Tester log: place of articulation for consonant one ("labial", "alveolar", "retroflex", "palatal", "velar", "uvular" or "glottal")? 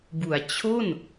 labial